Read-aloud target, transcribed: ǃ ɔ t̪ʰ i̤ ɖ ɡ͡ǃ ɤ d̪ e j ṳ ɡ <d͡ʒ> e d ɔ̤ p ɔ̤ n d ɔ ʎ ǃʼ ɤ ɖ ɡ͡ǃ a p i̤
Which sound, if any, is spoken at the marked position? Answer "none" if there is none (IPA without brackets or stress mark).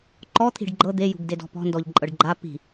d